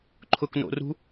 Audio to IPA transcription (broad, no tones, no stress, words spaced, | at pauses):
ǃʰʊkno̰rṳ